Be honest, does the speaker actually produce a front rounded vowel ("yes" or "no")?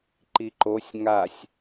no